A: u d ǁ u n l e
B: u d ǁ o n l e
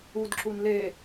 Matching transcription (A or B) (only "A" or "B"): A